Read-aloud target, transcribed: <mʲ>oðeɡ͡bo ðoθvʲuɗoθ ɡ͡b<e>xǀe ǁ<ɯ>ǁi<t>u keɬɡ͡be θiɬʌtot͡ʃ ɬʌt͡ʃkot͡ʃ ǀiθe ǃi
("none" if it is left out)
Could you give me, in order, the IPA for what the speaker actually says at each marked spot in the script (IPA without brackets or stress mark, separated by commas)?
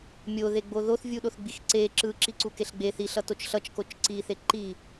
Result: mʲ, i, ɯ, ǀ